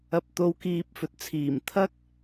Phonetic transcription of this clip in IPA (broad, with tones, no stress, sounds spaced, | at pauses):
ɐ˨˥ p̚ t̪ o˨˧ w k iː˨ p̚ f ɵ˨ t̚ t͡sʰ iː˨˩ m t̪ʰ ɐ˥ k̚